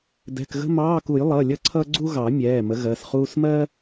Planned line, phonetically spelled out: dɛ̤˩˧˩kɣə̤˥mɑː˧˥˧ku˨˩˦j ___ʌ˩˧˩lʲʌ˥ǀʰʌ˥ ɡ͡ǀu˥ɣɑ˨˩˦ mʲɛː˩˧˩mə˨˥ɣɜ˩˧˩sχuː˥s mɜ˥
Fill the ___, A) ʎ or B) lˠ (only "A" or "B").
B